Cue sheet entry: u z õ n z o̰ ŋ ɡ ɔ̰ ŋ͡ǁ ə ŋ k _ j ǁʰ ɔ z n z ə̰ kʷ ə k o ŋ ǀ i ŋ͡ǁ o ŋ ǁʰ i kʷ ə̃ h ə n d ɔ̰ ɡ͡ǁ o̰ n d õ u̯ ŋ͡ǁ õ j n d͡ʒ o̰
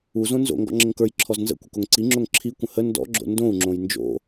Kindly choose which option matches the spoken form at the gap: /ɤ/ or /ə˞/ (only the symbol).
ə˞